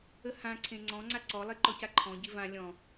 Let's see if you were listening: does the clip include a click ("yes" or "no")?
yes